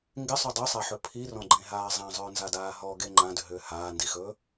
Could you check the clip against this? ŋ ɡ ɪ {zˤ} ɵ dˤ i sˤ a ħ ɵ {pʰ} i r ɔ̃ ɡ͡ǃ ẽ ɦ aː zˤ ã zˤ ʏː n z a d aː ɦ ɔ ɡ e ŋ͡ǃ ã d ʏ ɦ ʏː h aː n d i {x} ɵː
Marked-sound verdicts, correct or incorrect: incorrect, correct, correct

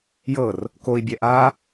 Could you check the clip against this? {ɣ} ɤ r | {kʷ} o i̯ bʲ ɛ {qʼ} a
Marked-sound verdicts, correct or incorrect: incorrect, incorrect, incorrect

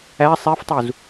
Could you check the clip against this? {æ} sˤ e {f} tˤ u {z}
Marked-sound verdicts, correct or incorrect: correct, correct, correct

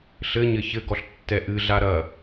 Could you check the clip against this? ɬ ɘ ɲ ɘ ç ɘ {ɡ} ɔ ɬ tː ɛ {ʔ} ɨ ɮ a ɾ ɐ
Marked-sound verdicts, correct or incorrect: correct, correct

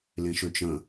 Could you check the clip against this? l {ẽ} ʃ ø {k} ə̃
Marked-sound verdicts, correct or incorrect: correct, incorrect

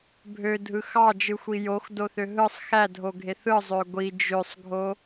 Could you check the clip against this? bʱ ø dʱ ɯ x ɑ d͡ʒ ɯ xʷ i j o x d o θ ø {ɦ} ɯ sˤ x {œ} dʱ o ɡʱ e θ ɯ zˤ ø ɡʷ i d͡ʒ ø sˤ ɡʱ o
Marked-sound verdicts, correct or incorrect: correct, incorrect

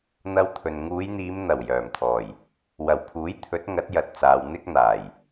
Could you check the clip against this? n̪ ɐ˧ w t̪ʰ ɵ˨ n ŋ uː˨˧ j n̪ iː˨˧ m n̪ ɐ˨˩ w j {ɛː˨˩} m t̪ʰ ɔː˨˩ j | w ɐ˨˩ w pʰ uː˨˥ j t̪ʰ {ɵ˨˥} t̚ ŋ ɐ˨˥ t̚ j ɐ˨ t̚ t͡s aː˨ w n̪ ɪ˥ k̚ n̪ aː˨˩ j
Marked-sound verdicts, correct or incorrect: incorrect, correct

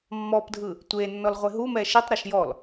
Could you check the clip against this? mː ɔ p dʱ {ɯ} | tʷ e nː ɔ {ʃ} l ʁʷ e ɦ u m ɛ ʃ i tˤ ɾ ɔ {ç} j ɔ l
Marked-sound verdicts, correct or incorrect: correct, incorrect, incorrect

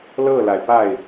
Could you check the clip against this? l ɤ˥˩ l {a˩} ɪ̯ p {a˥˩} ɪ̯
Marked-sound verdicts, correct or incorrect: correct, correct

